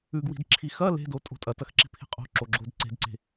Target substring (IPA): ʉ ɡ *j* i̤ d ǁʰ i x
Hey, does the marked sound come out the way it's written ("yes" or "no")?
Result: no